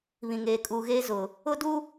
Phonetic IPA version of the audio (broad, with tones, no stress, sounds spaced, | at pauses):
β ĩ˨ ŋ eː˨ kʼ uː˨ ɣ eː˦ z ʊ˨ | ʊ˦ d u˦